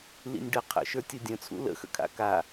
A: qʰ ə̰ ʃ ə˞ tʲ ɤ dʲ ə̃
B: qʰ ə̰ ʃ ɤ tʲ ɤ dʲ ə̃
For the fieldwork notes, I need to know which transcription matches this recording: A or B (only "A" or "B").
A